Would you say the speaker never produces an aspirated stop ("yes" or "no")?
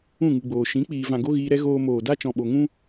yes